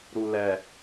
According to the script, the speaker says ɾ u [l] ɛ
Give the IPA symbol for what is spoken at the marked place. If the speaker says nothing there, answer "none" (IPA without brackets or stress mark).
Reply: l